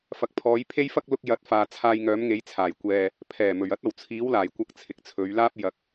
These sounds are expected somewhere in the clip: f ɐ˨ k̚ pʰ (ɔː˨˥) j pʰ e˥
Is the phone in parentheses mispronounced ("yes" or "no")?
yes